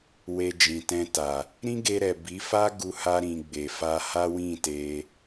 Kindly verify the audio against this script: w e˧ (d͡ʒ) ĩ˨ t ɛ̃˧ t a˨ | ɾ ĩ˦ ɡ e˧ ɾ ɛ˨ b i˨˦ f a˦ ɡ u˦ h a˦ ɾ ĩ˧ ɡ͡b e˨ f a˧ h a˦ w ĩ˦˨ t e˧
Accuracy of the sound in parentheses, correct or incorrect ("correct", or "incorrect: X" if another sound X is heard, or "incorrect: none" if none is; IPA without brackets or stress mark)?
correct